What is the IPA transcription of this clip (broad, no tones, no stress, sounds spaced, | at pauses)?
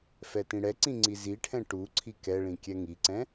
f ɛ t ĩ ɽ ɛ ǀ ĩ ŋ͡ǀ i z i ʈʰ ɛ̃ ʈ u ǀʰ i k ɛ ɭ ĩ kʲ ɛ ŋ i ǀ ɛ̃